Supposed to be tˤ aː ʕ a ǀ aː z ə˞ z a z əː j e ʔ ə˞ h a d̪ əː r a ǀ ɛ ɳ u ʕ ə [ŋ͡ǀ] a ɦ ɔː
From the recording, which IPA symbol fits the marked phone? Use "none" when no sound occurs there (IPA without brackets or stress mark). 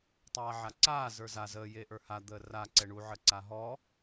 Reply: ǀ